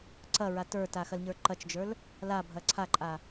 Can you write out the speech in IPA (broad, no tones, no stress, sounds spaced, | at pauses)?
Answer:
ǀ ɐ ɹ a t ə˞ t a x ɐ l ɲ ə˞ ǃ ɐ t͡ʃ d͡ʒ ə˞ l | l a bʱ ɐ ǀʰ a ǃʼ a